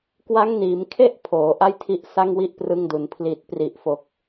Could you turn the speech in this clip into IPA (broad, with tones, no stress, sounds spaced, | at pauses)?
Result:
k w a˦˥ ŋ n iː˩˦ m kʰ e˥˩ ʔ pʰ oː˩˦ ʔ a˥˩ j tʰ i˦˥ ʔ s a˥˩ ŋ w i˥˩ ʔ p r ɯ˧ ŋ d u˩˦ n pʰ l i˨˩ t̚ p r i˨˩ ʔ f o˨˩ k̚